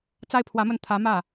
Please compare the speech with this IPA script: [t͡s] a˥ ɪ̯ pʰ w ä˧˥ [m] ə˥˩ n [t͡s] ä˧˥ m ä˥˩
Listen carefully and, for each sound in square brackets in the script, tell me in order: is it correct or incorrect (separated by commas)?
correct, correct, incorrect